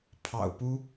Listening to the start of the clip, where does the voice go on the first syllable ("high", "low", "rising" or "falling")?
low